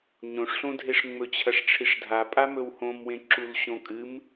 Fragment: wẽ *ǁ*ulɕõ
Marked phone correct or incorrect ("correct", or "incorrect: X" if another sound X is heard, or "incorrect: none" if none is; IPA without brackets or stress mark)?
correct